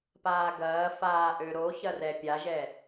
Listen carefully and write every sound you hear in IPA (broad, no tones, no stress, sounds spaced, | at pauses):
p aː ɡ ɐː f aː ʔ ø ɾ o ç ɐ r ɛ pʲ a ʒ ɛ